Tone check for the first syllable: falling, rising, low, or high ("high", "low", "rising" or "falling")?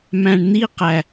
low